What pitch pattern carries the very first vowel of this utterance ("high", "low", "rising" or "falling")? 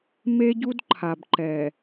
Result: high